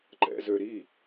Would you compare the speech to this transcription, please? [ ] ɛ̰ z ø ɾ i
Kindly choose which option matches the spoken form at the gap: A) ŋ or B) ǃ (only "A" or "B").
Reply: B